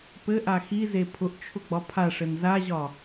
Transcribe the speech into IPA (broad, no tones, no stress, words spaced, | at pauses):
pɘʔa xize pʰʊʔt͡ʃʰʊɡ͡bɒ pʰaʂɘn zaʑɒ